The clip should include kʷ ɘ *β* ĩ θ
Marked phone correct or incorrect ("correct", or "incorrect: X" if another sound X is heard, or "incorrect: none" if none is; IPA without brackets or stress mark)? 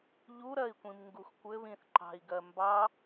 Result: correct